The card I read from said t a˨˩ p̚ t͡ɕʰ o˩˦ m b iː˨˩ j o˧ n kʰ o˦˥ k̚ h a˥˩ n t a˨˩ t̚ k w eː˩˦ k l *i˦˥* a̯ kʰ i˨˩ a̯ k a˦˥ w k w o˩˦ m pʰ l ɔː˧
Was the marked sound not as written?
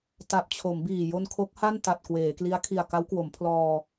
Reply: no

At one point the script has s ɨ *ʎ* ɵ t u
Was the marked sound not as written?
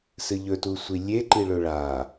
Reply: no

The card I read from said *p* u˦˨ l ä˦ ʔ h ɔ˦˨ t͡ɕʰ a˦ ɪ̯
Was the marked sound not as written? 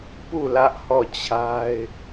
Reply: no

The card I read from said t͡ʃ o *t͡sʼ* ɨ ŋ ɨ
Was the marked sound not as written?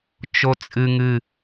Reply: no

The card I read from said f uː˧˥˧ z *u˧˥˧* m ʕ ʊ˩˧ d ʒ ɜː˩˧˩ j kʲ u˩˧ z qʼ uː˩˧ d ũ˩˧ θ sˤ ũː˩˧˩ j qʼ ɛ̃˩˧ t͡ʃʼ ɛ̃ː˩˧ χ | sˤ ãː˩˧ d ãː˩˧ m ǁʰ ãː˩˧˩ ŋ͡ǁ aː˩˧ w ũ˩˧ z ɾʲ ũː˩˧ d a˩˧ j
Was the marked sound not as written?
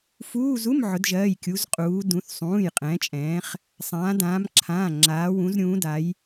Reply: no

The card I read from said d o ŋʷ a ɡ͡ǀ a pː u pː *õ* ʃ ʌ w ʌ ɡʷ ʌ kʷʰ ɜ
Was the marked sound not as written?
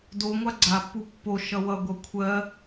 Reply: yes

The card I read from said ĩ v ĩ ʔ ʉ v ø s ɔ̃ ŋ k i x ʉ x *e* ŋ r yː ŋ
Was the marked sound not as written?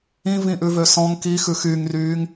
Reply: yes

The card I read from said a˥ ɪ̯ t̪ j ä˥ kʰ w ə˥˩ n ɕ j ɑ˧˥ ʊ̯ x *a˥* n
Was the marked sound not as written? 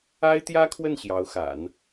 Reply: yes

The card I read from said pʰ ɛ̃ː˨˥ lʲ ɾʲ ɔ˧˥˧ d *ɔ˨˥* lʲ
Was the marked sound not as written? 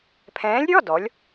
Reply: no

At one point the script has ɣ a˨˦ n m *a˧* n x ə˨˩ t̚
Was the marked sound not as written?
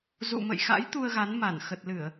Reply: yes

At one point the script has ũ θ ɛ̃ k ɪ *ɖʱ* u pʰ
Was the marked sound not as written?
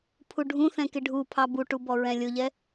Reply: no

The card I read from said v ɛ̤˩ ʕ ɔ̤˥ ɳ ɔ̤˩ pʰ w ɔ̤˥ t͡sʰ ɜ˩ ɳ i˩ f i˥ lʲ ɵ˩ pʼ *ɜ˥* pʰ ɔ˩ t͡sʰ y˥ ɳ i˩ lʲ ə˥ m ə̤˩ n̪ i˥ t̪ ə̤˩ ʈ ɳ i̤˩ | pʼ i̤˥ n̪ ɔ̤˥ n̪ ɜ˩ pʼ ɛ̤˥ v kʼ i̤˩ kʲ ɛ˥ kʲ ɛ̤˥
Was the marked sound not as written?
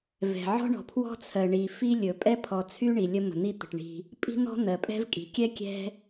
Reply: yes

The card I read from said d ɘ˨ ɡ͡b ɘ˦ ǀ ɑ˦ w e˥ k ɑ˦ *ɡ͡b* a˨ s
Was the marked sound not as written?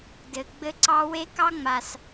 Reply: yes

